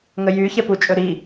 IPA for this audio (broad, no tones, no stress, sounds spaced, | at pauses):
ŋ ə j y ç ɛ p u t͡ʃʼ ɵ ɾ i